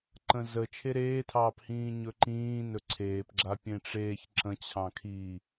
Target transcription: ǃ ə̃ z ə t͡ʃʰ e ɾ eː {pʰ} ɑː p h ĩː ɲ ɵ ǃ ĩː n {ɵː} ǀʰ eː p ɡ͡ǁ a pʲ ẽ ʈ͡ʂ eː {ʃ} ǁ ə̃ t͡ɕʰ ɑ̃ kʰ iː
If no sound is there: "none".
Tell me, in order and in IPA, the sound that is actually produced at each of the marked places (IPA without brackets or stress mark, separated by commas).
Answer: tʰ, ɵ, ç